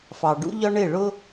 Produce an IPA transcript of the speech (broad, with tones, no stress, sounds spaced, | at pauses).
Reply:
f ɑ˩ ɖ ṵ˥ ʎ ɒ˥ ɳ ɪ˥˩ ɭ ʊ˥